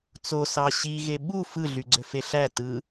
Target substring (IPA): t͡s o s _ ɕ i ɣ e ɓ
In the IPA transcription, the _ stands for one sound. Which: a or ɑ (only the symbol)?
ɑ